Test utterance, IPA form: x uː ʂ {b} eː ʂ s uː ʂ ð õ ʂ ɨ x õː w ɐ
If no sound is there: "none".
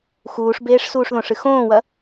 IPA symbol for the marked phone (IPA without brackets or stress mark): b